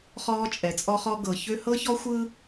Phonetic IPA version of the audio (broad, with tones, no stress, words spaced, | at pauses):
χɔː˦t͡ʃʼɛ˨t͡sʼɔ˦χɔ˦ ɡɤ˨çø˦ hɤ˦çɔ˦xʷɯ˦